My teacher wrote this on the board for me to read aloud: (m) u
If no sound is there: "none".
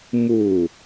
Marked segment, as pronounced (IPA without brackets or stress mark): m